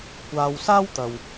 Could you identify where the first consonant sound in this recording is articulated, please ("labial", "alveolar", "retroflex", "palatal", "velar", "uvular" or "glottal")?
velar